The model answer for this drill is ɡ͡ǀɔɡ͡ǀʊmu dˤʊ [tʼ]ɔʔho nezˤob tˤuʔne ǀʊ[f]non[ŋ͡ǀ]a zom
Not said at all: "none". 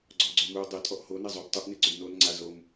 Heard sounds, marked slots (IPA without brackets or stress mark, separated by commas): tʼ, b, ŋ͡ǀ